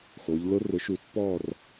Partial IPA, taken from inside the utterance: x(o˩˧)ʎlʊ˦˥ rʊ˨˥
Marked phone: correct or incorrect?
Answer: correct